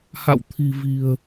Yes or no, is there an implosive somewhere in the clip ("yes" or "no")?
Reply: no